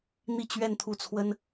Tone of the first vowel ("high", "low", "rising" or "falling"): falling